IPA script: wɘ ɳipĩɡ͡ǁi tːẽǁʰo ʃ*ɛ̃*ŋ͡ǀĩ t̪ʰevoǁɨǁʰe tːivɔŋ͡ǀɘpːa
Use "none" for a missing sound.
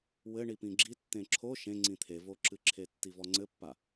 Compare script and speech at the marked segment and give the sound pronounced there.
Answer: ẽ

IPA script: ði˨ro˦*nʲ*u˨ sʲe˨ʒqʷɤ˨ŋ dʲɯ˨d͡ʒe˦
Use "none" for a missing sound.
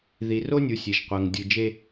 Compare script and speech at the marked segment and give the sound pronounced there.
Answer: nʲ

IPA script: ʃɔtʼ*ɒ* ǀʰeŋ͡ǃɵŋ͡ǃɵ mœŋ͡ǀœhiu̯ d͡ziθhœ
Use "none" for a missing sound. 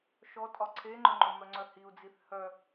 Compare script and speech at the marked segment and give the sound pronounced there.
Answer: ɒ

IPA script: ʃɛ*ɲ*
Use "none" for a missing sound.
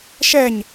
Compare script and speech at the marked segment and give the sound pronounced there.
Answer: ɲ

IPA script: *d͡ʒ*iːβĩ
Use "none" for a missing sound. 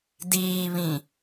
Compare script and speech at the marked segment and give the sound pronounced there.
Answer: d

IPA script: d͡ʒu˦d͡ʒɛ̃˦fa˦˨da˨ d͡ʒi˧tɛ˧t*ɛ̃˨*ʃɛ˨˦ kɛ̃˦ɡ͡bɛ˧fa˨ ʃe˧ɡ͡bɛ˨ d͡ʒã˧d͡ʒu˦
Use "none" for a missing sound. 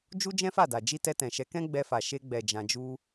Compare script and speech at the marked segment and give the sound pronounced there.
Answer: ɛ̃˨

